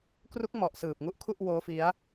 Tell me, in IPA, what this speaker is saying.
k r u˦˥ k̚ m ɔ˨˩ ʔ s ɯː˨˩ p̚ ŋ u˦˥ ʔ kʰ u˥˩ ʔ w oː˦˥ f i˦˥ a̯

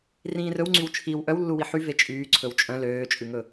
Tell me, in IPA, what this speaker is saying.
r ĩː r ɵ w ŋ͡ǀ y w t͡ʃʰ i w ʔ œ w lː u w i ħ y v e t͡ʃʼ yː ǀʰ ɵ w t͡ʃʼ œ̃ l øː t͡ʃʼ ʉ ŋ ɵ

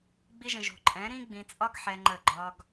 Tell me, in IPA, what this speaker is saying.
ɡ͡b i˧ ʒ ə̃˨ ʒ o̤˨ ǃʼ ɛ̃˨˦ ɾ ĩ˦ ɡ͡b ĩ˧ t͡sʼ ɒ˦ ɡ ħ ɛ˧ ŋ͡ǃ ə˦˨ ɡ͡ǃ ɒ˦ ɡ

